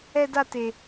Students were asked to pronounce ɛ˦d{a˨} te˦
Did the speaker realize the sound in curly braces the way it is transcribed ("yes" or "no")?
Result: no